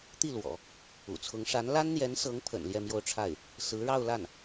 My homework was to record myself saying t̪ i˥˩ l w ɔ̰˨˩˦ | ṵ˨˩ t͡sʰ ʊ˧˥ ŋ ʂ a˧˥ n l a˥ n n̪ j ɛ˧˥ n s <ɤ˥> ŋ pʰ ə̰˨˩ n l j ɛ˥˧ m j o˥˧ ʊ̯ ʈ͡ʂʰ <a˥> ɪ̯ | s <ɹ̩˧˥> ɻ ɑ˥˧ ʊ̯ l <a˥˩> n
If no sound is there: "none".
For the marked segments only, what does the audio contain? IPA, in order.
ɤ˧˥, a˥˩, ɹ̩˧˥, a˥˩

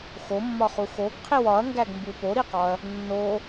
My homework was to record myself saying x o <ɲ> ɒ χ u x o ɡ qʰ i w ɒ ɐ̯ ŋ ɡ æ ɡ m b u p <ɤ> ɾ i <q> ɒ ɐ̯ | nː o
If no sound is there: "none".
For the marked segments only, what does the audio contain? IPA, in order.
mː, o, q

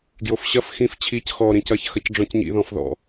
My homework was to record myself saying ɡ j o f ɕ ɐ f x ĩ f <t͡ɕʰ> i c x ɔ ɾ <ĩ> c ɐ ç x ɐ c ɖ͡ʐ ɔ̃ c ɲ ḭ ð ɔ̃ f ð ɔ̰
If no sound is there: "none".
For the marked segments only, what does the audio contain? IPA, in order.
t͡ɕʰ, ĩ

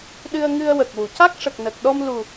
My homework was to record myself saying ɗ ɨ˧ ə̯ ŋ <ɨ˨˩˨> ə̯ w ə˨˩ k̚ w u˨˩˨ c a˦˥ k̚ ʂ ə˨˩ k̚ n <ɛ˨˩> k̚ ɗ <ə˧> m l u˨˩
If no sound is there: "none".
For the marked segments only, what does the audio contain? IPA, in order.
ɨ˧, ə˨˩, ɔ˧

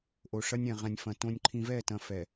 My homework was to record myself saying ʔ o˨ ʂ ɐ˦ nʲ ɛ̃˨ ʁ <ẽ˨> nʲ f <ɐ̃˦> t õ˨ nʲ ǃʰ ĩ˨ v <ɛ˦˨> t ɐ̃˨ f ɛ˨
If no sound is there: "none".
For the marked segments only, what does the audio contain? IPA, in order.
ɛ̃˨, ɐ̃˨, ɛ˦˨

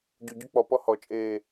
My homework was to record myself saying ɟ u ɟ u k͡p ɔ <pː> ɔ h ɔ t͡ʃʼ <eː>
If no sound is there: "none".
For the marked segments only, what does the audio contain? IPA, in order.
p, eː

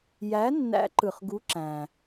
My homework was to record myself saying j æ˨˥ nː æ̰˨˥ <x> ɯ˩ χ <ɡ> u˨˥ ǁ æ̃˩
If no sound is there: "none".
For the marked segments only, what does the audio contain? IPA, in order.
ǃ, ɡ

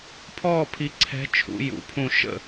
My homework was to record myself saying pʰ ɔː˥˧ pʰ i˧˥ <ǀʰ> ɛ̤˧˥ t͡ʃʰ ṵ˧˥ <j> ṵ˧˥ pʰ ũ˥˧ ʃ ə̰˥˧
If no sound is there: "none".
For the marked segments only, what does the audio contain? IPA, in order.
ǀʰ, j

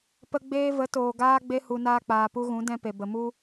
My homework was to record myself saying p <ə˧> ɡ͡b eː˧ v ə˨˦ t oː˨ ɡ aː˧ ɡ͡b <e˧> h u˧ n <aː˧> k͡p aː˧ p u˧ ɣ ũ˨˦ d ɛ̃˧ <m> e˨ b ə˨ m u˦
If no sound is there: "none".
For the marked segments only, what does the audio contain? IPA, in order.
ə˧, e˧, aː˦, p

